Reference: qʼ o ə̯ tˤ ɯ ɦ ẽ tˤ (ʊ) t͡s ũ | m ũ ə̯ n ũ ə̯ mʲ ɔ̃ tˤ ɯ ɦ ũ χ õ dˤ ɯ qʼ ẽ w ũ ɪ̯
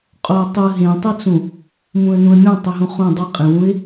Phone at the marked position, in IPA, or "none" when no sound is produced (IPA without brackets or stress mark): ɯ